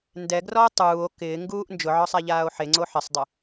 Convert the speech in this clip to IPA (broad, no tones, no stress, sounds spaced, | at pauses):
n d ɛ ɡ r ɔ o̯ tˤ uː o̯ k ɪː ŋ ɡ uː ʔ n d͡ʒ ʊ ʕ ɔ sˤ a ʎ aː o̯ ħ e ŋ͡ǀ o ħ ɪ sˤ dˤ ɪ